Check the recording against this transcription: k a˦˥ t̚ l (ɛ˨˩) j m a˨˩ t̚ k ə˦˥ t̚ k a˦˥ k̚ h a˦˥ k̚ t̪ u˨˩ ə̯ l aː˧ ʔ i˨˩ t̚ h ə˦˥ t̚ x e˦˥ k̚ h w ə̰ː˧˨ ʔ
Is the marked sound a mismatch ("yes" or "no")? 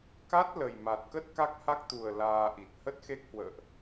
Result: yes